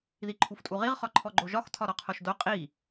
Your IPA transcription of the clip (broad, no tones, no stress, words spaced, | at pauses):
ðiǃʰuftʼuʁiʁ χɒǃʰɔɡ͡ǃoʒɒx tʰɒɾɔqʰoʃdo qʼi